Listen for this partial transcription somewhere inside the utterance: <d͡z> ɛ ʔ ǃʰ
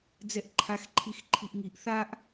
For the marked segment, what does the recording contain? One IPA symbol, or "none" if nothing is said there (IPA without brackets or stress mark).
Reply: d͡z